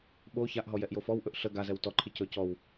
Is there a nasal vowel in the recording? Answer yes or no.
no